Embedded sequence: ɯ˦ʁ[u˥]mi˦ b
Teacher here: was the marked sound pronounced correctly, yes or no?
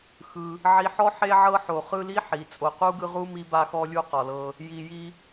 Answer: yes